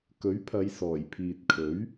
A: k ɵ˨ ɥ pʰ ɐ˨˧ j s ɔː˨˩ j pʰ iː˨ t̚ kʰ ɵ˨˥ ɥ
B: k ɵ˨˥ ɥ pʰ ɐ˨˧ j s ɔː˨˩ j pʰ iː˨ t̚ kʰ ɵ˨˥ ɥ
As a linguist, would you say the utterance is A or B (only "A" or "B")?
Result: B